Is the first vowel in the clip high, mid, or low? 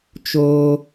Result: mid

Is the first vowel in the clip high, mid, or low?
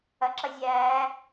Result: low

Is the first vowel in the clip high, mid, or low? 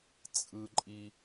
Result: high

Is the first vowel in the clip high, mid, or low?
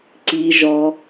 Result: high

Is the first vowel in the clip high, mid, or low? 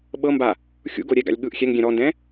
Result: mid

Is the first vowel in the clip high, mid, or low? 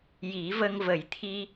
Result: high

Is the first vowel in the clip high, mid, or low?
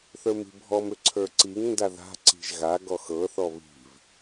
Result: mid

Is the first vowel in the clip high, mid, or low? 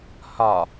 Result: low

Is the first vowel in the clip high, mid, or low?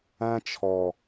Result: low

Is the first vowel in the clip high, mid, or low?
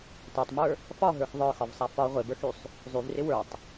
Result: low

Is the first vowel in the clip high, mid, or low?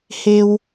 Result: mid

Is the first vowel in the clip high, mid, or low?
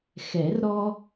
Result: mid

